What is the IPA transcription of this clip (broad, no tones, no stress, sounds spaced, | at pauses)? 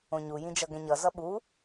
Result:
õ ɲ u j ĩ d͡ʒ ʌ ɡ ɛ̃ ɲ ʌ z ʌ ɓ u